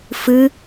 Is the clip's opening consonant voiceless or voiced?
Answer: voiceless